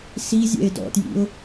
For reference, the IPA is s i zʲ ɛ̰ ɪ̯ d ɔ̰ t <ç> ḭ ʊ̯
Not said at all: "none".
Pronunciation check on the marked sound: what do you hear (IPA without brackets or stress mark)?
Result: j